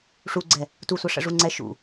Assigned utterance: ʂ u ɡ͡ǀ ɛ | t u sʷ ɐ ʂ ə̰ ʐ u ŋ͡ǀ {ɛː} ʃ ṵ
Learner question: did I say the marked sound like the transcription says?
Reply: no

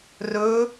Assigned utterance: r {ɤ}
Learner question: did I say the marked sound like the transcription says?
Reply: no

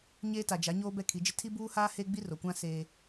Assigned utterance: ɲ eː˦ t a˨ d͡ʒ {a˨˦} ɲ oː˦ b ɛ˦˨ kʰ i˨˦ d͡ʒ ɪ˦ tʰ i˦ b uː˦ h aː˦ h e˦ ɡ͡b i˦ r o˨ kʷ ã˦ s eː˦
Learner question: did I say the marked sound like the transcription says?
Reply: yes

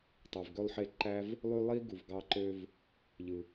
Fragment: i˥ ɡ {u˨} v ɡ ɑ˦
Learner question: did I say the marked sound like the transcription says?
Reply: yes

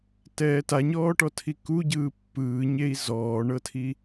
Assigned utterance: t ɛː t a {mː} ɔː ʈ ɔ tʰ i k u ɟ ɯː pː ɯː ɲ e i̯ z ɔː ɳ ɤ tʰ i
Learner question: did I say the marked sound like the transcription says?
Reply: no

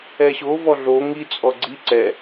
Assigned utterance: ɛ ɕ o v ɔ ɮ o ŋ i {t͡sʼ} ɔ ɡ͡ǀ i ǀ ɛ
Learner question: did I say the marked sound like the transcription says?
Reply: yes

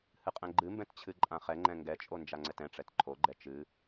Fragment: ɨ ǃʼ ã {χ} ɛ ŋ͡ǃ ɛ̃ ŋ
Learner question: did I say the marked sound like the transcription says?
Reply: yes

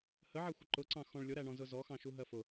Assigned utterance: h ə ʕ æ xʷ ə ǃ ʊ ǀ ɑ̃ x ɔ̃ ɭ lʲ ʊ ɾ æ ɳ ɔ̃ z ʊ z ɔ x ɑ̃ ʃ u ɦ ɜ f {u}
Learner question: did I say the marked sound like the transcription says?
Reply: no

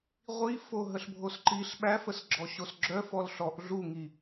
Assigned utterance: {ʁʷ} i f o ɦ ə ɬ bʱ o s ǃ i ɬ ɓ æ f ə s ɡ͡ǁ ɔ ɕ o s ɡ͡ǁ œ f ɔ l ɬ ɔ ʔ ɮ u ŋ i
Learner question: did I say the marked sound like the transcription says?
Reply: yes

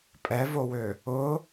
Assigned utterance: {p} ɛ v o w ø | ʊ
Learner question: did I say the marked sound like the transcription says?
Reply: no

